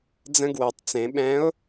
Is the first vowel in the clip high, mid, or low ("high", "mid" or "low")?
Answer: mid